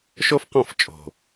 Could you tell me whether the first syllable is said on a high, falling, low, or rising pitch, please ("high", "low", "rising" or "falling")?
high